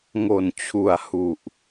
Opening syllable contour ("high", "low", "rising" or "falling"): low